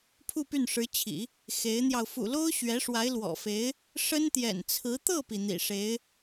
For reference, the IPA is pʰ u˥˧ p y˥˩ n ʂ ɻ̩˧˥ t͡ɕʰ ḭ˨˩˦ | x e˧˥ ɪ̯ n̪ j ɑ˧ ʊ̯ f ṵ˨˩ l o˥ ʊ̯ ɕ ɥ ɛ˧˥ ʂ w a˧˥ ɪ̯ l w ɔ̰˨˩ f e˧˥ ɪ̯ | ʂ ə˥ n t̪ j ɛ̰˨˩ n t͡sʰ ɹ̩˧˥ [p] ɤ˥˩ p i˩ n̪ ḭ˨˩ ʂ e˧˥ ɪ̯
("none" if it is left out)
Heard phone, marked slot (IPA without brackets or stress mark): t̪